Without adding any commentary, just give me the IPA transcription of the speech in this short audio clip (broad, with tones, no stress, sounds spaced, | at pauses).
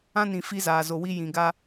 ã˦ n ĩ˨ f i˦ z aː˨ z o˨ w i˦ j ĩ˨ ɡ a˦